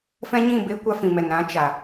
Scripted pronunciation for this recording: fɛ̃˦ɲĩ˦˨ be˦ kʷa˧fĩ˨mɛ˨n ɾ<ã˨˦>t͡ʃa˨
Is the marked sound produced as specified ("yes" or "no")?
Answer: yes